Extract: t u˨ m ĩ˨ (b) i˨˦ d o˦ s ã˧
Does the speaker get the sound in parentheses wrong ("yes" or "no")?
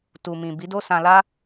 no